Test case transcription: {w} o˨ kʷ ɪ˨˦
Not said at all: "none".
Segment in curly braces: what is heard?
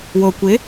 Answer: w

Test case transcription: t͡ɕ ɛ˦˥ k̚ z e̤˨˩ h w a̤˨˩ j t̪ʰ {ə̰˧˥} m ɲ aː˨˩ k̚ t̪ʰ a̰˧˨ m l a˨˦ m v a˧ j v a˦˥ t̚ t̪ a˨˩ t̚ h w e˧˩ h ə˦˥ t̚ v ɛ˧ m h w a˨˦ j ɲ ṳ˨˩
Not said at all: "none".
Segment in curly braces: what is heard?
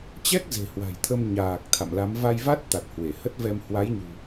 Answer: ə˧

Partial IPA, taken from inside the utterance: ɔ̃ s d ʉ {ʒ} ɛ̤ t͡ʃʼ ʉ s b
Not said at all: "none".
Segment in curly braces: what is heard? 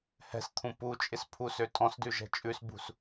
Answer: ʒ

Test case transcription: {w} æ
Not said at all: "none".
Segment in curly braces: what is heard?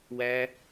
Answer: w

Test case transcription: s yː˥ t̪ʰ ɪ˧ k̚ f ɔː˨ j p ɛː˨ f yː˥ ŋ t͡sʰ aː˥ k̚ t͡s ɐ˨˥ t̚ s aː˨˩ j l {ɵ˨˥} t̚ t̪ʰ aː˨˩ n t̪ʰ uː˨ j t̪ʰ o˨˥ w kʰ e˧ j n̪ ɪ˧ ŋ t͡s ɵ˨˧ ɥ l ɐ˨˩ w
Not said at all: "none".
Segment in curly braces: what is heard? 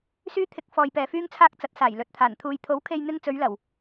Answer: ɵ˨˥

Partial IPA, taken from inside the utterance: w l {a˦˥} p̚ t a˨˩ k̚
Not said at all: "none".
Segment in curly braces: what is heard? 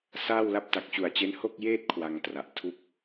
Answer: a˥˩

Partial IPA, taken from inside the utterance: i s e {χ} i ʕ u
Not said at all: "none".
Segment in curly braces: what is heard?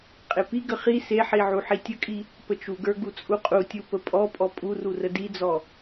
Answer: ħ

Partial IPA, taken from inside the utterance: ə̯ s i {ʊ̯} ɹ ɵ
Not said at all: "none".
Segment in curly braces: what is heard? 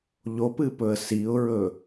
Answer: ʊ̯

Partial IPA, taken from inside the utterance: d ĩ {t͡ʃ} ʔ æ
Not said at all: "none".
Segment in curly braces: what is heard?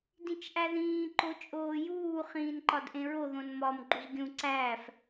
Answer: t͡ʃ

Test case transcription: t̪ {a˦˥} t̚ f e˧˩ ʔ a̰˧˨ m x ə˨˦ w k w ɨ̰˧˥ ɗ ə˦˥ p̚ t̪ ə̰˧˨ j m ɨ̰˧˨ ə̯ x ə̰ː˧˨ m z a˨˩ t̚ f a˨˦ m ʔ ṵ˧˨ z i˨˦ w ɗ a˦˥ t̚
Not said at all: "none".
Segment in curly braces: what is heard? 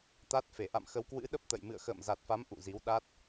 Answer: a˦˥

